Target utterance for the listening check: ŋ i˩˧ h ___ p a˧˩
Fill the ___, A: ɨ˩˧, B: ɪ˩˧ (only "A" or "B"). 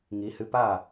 A